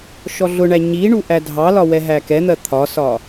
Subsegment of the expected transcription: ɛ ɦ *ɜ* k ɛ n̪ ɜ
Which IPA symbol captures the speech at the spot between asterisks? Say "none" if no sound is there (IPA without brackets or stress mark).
æ